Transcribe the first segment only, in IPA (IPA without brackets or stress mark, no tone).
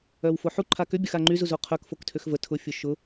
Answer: œ